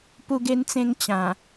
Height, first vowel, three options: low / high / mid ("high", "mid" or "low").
high